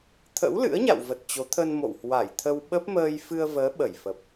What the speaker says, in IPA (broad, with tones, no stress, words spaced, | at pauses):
t̪ʰə̰˧˥wlɨ̰˧˥ə̯ɲa̰˧˨wvə˨˩t̚ t͡ɕo˨˦t̪ʰə˧nmo̰˧˨w hwa˧˩jt̪ʰə˧w ɓə˦˥p̚məː˧jfɨ˧ə̯ vəː˨˦ ɓə˧˩jfə˨˩p̚